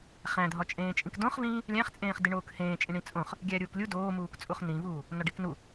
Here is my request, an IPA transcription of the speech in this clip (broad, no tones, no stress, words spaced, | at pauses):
χæ̃dʱɒt͡ʃʼẽːt͡ʃʼĩk dõχvĩː | lʲæ̃χt͡sʼẽːχ diɳoːkhẽːt͡ʃʼĩ ɳĩt͡sʼõχ | ɡʲæɾʲuːklʲu doːmuːkt͡sʼuχ nĩvuː | nɒɖiknu